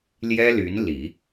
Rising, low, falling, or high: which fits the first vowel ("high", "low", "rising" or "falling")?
high